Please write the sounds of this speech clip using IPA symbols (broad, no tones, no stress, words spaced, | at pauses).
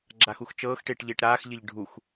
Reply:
ɡ͡ǁaxuxt͡ʃɤːxʈɪːʈ ʎɪːʈɾaːxʎɪʎ ɖʱux